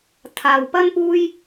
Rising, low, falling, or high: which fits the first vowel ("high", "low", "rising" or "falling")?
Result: low